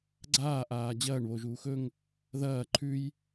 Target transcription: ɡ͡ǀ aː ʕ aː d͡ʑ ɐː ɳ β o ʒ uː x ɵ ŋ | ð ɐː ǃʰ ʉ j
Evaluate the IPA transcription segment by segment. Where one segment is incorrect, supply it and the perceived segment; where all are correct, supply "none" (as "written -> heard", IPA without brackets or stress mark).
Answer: ʕ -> ʔ